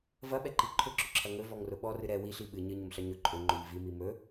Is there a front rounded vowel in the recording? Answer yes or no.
no